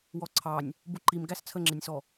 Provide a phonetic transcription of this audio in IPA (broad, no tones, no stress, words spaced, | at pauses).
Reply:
wɔǀʰɑnʲ | buǃim ɡæst͡sʰəŋ͡ǁɪnʲsɔ